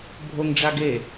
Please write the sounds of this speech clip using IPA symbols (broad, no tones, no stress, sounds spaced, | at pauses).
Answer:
bʱ o ŋ ɖ͡ʐ a ɡ e